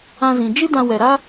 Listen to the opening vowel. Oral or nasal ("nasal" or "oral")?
nasal